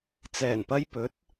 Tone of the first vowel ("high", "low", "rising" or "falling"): low